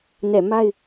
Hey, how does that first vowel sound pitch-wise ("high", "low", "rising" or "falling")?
falling